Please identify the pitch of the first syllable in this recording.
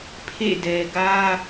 falling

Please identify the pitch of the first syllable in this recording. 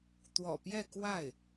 low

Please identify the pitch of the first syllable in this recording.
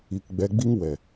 low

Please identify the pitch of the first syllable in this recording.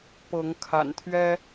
rising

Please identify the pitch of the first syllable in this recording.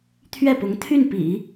falling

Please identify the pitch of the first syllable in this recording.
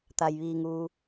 low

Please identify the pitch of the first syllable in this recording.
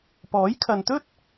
rising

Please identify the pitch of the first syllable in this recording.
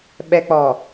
low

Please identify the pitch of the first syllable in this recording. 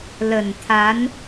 low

